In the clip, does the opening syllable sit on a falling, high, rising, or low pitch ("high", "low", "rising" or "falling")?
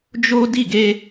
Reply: high